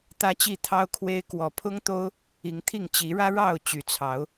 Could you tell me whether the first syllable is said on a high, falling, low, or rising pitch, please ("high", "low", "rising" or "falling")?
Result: high